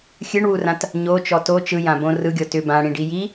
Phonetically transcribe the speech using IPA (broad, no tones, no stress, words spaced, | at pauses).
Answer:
xʲɨɳwurãt | ɲot͡ʃɔ to t͡ʃɯjãbõ rɯɡʲɔ tʏ bãɽĩɖi ji